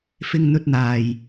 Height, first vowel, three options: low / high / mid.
high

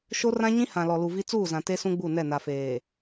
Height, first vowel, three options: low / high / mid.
mid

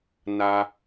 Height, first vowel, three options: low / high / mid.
low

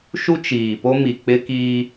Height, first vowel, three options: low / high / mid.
high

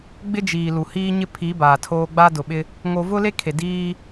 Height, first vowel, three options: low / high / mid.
high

